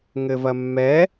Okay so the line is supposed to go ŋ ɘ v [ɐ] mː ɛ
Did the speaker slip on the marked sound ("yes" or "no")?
no